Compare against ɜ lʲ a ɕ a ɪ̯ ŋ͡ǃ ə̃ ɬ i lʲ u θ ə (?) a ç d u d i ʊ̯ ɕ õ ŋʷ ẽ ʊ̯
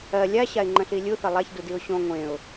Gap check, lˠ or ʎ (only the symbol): lˠ